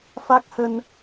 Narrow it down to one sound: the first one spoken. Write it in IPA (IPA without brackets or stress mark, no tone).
f